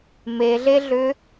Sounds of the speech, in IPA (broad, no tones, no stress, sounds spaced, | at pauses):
m e ɮ e ɮ ʏ